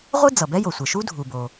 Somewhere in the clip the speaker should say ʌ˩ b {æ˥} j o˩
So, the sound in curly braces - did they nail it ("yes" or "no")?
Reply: no